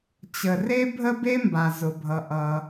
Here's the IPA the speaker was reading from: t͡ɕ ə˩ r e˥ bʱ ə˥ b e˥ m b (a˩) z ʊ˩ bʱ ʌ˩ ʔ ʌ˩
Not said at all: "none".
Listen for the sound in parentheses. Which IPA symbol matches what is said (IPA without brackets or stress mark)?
a˩